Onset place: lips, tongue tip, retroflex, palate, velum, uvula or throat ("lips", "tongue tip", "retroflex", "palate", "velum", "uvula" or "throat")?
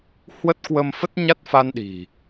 throat